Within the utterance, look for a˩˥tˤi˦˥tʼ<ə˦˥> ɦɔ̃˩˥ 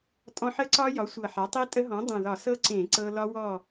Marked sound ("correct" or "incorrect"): correct